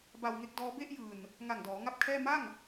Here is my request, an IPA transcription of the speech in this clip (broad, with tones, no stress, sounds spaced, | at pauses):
b a˧ w ŋ e˦˥ k̚ d ɔː˦˥ b e˥˩ ʔ j ɯː˨˩ n | ŋ a˨˩ ŋ d ɔː˩˦ ŋ a˥˩ p̚ kʰ ɛː˥˩ m a˥˩ ŋ